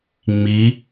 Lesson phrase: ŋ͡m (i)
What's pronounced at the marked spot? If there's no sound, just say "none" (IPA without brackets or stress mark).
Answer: i